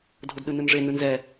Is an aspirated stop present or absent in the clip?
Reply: absent